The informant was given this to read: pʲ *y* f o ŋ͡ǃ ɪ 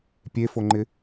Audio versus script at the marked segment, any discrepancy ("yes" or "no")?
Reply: yes